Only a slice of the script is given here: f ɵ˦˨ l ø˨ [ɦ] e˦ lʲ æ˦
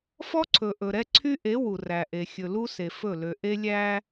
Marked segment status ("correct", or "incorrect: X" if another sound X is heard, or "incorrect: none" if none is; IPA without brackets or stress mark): incorrect: ʔ